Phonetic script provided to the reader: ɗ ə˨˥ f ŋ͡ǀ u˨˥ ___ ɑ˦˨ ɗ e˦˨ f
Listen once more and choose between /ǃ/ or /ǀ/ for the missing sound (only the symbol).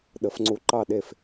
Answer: ǃ